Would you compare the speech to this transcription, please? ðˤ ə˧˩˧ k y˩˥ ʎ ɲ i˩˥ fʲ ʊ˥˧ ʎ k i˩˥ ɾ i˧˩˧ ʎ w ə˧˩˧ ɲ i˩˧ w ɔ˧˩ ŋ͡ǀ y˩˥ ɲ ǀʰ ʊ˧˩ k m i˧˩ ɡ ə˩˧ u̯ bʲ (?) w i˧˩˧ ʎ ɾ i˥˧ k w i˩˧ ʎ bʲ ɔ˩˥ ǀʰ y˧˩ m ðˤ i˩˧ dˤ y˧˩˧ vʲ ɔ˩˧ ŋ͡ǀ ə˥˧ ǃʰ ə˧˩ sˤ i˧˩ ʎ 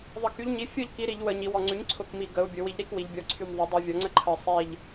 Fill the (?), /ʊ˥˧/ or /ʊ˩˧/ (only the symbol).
ʊ˩˧